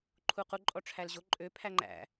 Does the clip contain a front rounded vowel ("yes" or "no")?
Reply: yes